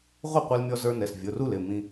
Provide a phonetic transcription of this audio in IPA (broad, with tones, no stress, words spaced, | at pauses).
ʁʷʌ˥˩qʷɛ˧lmʲɔ˧zə˞˧ nɛ˩˧˩s vʲʊ˩˧˩ru˥˩l ɪ˥˩mĩ˧